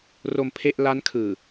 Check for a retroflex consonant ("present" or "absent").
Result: absent